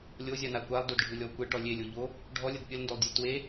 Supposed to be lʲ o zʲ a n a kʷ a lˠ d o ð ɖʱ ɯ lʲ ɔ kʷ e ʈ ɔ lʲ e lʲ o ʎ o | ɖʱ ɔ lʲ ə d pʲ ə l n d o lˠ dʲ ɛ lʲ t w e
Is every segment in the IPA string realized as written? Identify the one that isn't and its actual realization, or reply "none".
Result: ð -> d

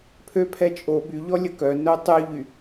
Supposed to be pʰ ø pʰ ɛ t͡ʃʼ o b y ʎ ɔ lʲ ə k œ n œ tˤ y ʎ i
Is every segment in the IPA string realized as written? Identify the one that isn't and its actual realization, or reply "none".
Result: i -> y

